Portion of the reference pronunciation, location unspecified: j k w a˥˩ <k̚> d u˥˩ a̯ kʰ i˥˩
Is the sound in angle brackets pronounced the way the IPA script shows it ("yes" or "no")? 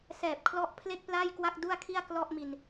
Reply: yes